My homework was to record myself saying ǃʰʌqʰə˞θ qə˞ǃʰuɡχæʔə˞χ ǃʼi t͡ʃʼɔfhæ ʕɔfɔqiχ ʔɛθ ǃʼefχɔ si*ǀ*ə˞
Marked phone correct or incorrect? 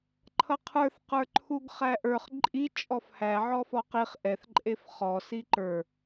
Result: incorrect